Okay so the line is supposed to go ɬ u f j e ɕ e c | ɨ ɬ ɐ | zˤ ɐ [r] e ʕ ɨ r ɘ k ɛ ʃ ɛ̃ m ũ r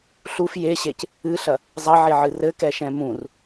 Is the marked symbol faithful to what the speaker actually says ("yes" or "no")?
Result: no